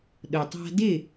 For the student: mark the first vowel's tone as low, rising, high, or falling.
low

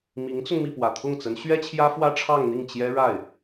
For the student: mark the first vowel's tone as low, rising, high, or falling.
rising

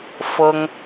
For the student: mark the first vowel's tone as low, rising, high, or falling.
high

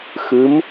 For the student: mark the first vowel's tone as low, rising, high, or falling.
rising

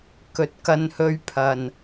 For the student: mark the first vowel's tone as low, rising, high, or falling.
rising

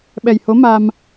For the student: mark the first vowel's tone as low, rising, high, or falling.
low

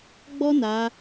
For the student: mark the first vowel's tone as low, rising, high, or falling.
high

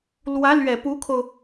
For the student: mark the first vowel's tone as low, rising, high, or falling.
rising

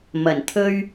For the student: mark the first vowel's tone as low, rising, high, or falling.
low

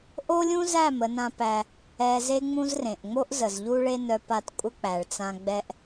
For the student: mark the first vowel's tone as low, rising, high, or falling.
high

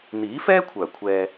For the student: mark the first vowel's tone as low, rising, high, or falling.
rising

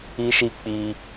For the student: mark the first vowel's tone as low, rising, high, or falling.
high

